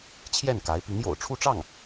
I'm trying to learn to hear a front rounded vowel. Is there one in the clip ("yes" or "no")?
no